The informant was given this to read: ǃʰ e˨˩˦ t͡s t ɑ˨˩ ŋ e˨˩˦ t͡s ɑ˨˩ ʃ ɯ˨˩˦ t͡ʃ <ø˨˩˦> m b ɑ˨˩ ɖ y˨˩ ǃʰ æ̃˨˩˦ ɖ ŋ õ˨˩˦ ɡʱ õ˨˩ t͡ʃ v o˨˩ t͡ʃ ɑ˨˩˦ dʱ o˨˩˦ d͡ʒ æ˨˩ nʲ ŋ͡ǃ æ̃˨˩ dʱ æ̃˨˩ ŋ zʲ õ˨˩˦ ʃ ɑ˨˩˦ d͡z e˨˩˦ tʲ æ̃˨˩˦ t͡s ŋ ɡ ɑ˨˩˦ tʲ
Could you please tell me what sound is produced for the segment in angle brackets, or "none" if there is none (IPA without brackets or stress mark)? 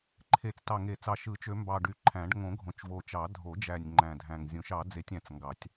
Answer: ø˨˩˦